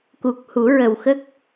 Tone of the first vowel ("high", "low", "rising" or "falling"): low